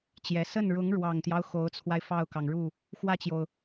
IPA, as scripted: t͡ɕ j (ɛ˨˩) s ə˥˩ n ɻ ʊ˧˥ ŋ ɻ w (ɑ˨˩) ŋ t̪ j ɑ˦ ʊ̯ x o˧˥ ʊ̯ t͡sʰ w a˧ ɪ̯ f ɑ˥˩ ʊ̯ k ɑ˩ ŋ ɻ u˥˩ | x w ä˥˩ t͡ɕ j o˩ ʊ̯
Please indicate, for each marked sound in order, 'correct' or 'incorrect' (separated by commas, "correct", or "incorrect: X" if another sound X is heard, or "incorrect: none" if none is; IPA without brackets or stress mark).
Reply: correct, correct